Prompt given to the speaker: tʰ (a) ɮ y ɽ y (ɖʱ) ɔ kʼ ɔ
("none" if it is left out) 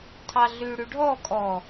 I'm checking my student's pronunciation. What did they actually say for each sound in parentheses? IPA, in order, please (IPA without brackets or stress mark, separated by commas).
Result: ɑ, ɖʱ